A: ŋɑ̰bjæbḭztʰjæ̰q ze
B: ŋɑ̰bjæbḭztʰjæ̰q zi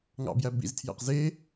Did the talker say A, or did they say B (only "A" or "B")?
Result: A